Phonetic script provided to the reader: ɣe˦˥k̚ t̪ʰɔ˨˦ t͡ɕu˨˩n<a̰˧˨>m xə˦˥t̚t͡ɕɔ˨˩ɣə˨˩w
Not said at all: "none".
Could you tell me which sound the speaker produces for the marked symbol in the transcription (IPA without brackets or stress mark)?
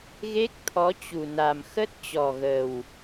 a˨˩